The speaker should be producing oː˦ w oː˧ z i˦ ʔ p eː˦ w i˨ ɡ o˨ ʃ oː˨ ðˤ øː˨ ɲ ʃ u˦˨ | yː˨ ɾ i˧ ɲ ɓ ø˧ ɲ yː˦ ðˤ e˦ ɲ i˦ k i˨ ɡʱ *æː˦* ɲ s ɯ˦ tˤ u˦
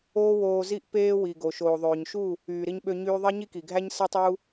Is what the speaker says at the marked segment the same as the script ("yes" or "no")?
no